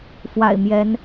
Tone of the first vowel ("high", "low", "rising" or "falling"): low